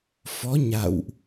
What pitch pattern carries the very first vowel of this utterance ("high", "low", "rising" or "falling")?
rising